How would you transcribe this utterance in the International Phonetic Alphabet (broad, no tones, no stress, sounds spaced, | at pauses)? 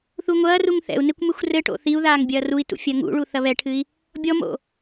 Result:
θ u ŋʷ ɐː r u ŋ θ ɛ̰ u̯ n e kʷ m ɨ xʷ r ɘ ʈ o̰ θ i u̯ ð aː ŋ bʲ ɐː r u i̯ t ṵ fʲ ɐ ŋ ṵ ɭ u θ ɐ β ɛ ʈʰ ɨ i̯ | bʲ ɔ m o̰